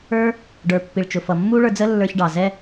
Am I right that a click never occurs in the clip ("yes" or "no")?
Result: yes